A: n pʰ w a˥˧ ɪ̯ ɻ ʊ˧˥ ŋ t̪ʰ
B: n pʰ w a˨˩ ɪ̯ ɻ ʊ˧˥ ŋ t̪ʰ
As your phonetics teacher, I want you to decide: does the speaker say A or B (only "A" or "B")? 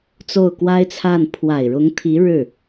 B